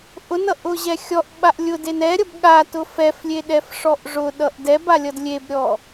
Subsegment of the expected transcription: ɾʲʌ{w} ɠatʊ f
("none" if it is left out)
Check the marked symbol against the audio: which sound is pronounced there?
b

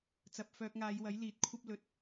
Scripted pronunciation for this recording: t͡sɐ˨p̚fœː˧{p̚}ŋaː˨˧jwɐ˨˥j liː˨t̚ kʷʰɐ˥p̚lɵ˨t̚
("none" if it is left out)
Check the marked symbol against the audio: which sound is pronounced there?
k̚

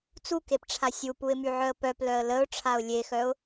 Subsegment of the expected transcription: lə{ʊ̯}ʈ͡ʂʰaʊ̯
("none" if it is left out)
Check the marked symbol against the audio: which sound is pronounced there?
ʊ̯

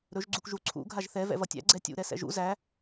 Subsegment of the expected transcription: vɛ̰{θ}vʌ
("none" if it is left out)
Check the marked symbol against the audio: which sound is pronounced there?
none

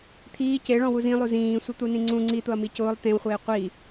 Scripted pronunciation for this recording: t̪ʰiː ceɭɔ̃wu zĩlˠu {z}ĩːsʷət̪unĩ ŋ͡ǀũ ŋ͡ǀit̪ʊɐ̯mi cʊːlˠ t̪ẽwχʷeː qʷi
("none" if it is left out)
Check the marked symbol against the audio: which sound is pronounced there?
z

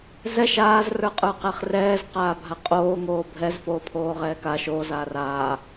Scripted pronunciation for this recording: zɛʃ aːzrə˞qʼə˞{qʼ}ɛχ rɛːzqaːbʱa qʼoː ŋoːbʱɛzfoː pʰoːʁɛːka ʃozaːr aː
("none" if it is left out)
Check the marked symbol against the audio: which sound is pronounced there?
q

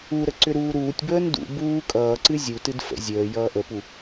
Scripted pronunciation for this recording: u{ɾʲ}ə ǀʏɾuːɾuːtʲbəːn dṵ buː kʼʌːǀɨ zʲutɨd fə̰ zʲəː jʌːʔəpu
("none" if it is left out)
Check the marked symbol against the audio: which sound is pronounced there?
ɾ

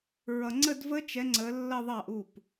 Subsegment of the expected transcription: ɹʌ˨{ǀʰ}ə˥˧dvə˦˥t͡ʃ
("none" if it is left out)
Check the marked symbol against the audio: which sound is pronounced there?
ŋ͡ǀ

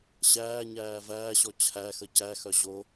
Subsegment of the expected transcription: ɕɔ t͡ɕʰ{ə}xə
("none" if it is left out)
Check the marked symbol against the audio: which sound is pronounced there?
æ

